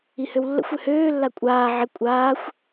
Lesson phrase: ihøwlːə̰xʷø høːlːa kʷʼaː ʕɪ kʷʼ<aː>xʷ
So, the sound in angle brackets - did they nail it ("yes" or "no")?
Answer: yes